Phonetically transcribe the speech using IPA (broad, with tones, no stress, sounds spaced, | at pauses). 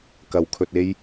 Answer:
k ɐ˨˧ w kʰ ɵ˧ t̚ e˥ j